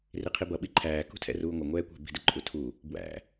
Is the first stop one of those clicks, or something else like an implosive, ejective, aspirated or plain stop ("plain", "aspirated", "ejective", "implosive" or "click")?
aspirated